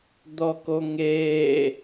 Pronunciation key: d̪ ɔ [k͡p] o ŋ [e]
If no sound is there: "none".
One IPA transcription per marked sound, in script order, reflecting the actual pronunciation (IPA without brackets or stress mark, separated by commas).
k, eː